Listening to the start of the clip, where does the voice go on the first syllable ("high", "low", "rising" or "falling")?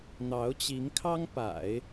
rising